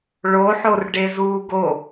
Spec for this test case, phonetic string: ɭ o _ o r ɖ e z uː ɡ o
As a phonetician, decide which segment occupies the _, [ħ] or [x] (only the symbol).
ħ